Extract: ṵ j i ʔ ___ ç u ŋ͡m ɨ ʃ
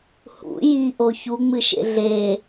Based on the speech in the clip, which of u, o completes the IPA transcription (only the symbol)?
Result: o